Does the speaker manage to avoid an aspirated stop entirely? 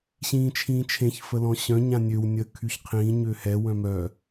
no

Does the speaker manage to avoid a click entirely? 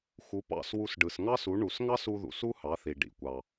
yes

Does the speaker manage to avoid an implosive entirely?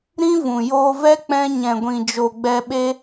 no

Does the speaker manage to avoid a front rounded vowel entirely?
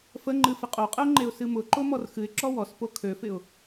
no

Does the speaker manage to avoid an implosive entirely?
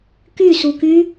yes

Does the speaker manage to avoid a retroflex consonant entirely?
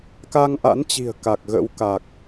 yes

